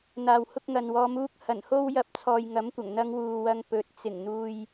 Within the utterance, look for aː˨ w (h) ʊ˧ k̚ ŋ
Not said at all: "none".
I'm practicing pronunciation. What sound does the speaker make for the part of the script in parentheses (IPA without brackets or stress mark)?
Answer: h